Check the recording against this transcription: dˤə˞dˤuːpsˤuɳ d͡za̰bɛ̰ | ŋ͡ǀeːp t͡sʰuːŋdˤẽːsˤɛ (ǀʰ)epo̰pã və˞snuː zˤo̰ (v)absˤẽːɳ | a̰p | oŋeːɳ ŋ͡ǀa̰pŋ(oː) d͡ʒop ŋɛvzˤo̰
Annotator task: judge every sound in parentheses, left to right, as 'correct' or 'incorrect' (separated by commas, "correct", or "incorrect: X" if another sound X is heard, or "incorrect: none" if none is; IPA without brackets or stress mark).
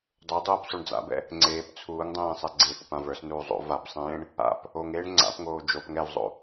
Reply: incorrect: ɡ͡ǀ, correct, correct